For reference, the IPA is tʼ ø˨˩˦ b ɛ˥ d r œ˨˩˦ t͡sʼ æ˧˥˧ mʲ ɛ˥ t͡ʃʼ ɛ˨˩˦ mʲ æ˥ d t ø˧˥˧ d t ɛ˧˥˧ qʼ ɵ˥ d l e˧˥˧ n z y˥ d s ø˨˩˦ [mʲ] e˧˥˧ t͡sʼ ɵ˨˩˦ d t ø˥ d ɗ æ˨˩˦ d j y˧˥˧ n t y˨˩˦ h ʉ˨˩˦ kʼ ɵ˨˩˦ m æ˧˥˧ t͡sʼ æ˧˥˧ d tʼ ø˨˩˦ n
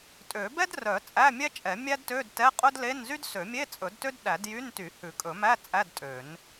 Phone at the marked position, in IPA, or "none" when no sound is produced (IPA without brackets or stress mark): mʲ